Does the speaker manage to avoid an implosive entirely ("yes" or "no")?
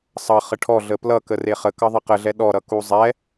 no